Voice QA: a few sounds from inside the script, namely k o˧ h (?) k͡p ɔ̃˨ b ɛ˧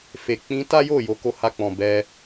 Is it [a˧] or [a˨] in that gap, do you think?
a˧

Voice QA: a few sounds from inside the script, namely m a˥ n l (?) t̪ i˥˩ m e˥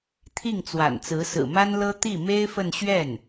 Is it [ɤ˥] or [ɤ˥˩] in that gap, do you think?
ɤ˥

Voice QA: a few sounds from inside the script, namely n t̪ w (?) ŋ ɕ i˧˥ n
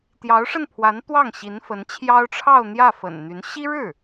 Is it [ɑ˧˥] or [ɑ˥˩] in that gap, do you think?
ɑ˥˩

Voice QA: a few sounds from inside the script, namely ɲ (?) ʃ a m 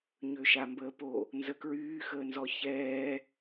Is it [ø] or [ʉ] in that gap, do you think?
ø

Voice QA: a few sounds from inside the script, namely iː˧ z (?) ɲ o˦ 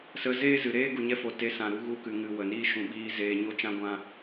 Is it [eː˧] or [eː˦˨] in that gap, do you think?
eː˧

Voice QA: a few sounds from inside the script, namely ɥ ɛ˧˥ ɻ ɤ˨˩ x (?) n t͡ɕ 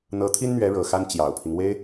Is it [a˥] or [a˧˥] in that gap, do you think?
a˥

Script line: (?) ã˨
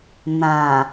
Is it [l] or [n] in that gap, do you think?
n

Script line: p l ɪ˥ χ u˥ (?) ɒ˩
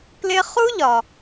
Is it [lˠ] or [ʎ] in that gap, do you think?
ʎ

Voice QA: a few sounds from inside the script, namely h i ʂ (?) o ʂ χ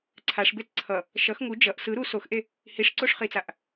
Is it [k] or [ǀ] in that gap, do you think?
ǀ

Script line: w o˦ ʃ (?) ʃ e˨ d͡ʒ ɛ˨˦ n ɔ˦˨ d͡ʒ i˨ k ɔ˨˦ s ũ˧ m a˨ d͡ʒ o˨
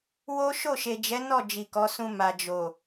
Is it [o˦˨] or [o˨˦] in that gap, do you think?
o˦˨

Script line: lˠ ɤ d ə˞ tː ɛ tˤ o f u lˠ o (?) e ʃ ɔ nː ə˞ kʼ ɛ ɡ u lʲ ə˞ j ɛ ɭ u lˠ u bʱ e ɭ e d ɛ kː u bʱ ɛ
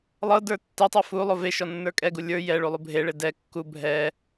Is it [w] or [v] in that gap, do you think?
v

